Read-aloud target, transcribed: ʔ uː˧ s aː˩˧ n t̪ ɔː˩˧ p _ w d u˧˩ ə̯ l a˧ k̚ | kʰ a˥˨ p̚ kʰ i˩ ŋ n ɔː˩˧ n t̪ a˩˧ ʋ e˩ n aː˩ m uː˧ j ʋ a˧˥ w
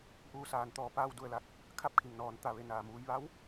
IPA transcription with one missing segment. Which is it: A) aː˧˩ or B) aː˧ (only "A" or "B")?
B